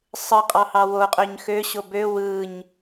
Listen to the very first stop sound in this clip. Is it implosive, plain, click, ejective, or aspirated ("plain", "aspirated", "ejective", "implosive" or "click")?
ejective